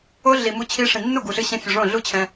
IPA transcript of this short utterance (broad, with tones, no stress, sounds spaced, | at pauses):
o˦ ɮ i˨ m u˧ t͡ɕʰ i˧ ʂ ĩ˨ nː u˦˨ ɡ u˨ ɬ ɨ˧ ɕ ɛ̃˧ fʲ ɔ˨ ʐ õ˦˨ ɮ u˦ t͡ɕʰ ɛ̃˧